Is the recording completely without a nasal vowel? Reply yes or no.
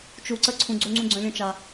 no